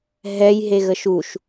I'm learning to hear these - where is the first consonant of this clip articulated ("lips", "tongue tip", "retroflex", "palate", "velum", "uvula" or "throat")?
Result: throat